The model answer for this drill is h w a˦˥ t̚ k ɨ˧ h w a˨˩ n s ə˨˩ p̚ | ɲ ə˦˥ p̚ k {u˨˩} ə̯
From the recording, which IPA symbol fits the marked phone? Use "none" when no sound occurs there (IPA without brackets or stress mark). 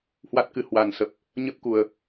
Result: u˨˩